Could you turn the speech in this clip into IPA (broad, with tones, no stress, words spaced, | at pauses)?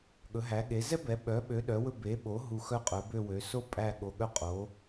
ɠɵ˩˥ɦæ˩˥ɠe˩˥ zɛ˥bɛ˩˥ ɓœ˩˥ɓø˩˥ ɗœ˩˥wɵ˦˨ be˩˥ɓo˩˥ ɦu˦˨xœ˥qʼœ˩˥ bø˦˨wø˩˥so˥ pʼæ˦˨ɠo˩˥ɠœ˦˨ qʼo˩˥